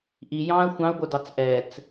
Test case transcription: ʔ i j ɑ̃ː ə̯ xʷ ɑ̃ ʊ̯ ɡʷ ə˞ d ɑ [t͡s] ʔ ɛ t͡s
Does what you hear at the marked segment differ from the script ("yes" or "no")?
no